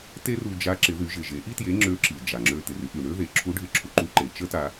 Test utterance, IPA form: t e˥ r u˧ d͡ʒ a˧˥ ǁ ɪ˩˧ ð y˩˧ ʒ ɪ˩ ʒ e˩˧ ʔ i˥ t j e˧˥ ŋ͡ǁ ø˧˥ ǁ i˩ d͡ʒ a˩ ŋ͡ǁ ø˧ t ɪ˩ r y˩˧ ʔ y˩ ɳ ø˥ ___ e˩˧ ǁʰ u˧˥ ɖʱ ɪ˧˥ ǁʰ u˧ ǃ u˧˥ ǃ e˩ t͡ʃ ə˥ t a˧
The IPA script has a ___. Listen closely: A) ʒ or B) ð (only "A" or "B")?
B